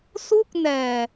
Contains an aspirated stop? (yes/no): no